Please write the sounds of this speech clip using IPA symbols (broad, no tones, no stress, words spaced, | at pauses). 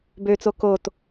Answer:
bøt͡so kot